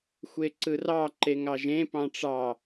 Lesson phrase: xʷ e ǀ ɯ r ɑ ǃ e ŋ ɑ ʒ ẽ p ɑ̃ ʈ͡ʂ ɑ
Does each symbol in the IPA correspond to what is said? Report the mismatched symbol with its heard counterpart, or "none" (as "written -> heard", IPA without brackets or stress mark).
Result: none